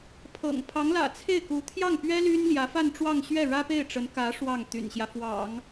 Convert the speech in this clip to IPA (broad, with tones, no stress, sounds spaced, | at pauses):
pʰ ɤ̰˨˩ ŋ pʰ ɑ˧˥ ŋ l ä̰˨˩ t͡sʰ e˥˩ ɪ̯ k u˧˥ t̪ʰ j ɑ˥˩ ŋ p ɥ ɛ˥ l y˥ n l j ä˧˥ f a˥˧ n ʈ͡ʂ w ɑ˥˧ ŋ ɕ ɥ ɛ˥˩ ɻ ä˥ p e˥˩ ɪ̯ ʈ͡ʂ ə˧˥ n k ä˧˥ ʂ w ɑ˥˩ ŋ t̪ y̰˨˩ n ɕ j ä˦ f w ɑ̰˨˩˦ ŋ